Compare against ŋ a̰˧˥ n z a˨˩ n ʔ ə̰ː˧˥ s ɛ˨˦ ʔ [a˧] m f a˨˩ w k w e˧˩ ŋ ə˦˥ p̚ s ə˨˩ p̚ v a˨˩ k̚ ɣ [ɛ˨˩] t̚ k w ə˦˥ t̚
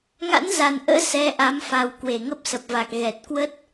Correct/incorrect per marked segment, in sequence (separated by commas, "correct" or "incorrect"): incorrect, correct